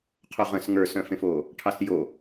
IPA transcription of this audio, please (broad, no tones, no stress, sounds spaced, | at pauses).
qʰ o ʁ ə̃ s ŋ ə˞ s œ̃ f ẽ f oː | ʈʰ ɑ s j o